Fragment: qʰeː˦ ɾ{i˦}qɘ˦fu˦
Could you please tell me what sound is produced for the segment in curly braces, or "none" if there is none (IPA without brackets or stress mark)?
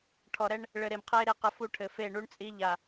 e˦